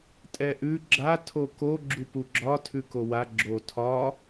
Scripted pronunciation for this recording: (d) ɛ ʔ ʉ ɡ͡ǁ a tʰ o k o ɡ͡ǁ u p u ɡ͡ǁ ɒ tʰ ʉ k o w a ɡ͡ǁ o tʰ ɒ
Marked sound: incorrect: tʼ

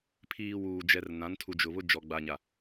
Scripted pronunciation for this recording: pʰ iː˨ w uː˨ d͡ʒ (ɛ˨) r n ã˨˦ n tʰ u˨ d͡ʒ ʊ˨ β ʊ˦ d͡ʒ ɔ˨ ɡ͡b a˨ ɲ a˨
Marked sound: correct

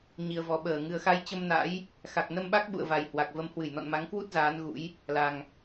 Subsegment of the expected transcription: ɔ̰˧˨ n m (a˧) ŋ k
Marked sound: incorrect: a˨˦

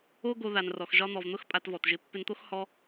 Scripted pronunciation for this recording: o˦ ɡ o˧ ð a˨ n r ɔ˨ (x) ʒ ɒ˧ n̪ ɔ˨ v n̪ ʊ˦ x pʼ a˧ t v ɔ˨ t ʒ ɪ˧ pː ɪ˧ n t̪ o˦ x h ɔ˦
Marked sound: correct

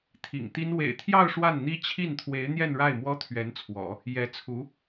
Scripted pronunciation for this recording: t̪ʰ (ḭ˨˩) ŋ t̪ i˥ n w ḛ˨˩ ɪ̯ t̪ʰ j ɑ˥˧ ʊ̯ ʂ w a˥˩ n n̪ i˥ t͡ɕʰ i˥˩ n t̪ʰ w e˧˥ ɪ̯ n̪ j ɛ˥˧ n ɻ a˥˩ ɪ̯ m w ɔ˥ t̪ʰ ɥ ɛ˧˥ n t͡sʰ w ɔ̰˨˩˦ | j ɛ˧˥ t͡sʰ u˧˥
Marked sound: correct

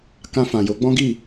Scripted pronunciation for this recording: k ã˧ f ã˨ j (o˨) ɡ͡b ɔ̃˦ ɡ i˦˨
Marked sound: incorrect: o˨˦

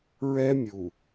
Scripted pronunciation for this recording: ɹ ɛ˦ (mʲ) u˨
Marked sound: correct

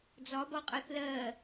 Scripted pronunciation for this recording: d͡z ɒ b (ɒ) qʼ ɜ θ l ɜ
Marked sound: correct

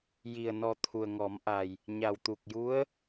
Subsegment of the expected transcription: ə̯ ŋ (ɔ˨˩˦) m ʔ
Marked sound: correct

